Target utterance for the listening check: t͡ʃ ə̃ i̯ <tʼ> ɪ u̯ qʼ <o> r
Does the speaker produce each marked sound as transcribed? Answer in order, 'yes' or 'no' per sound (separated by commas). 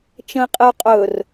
no, no